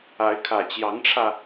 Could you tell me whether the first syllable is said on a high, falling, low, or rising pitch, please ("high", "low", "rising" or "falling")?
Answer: rising